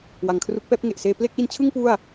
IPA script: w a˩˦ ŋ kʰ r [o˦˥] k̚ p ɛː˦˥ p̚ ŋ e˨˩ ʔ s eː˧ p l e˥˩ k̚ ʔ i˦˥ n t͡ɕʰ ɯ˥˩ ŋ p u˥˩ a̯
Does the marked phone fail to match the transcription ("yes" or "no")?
yes